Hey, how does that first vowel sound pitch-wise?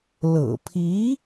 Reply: low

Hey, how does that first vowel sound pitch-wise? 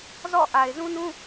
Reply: falling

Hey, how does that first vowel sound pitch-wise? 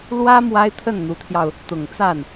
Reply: high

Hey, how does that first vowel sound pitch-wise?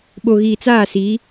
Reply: low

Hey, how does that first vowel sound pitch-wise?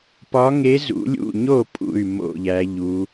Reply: rising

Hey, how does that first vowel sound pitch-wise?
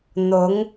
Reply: rising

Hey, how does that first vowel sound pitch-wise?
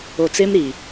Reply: low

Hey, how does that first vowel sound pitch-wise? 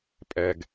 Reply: low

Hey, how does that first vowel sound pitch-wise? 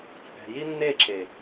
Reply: low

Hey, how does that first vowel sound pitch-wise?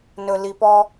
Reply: high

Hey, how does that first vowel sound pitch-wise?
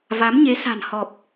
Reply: rising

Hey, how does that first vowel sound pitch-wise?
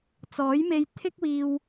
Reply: rising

